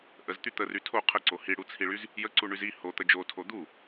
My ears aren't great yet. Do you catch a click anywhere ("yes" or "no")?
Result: yes